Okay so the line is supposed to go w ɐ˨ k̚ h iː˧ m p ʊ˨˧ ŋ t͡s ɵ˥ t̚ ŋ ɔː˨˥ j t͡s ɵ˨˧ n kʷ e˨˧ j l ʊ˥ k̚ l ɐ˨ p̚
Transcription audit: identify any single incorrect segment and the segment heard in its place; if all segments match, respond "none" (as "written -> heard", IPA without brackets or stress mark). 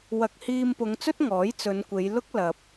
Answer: none